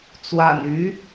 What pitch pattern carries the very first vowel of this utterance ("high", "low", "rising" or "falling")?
low